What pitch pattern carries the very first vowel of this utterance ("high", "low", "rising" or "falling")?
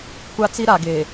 high